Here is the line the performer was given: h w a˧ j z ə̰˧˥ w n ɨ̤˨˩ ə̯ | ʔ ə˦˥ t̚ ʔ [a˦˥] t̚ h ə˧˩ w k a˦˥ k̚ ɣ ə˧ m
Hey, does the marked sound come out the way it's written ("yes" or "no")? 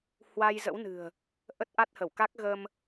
yes